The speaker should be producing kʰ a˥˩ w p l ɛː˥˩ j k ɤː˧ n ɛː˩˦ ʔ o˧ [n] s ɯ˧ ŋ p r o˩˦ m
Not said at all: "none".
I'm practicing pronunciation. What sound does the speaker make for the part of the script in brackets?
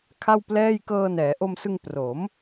m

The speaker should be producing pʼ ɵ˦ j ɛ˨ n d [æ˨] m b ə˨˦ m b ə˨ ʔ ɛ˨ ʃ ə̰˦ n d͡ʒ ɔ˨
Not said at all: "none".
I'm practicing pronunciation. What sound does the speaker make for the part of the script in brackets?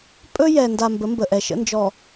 a˨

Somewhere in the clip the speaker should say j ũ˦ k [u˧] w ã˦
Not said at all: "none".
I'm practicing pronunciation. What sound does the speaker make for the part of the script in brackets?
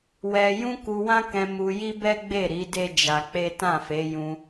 u˧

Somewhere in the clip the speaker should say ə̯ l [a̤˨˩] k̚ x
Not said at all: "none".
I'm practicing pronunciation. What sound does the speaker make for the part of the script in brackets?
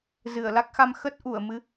a˦˥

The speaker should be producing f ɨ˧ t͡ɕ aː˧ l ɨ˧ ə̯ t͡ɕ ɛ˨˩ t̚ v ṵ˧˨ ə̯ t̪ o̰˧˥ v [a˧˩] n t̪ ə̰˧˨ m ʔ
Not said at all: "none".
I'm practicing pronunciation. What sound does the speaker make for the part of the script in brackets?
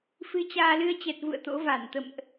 a˧˩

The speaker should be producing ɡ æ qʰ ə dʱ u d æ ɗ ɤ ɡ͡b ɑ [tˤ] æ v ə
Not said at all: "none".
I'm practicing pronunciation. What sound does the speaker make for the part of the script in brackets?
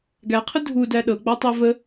tˤ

